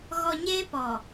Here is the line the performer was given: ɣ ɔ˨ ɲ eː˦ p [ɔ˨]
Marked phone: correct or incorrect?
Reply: correct